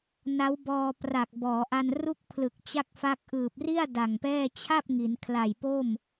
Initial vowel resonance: oral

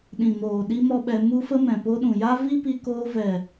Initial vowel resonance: nasal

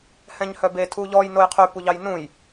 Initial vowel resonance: nasal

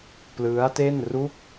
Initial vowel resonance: oral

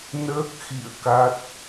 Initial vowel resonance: oral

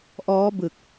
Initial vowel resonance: oral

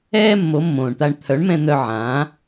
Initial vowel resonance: oral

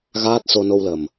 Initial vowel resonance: oral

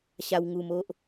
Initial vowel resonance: oral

